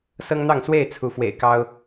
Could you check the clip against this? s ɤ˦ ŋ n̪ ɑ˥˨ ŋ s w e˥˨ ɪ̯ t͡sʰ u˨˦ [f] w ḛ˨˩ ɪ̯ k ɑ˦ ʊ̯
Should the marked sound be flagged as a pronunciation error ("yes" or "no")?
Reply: no